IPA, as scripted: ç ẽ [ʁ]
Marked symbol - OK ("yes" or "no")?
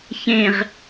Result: yes